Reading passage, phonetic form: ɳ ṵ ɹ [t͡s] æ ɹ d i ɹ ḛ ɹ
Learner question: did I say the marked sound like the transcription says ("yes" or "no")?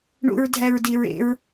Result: no